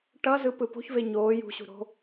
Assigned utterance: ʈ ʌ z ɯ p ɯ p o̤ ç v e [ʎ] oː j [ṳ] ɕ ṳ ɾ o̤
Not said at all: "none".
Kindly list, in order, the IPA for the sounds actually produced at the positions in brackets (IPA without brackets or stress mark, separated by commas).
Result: ɲ, ṳ